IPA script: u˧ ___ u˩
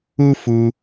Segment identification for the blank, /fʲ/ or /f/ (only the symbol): f